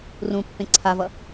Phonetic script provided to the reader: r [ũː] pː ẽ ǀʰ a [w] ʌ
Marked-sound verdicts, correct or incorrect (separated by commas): incorrect, incorrect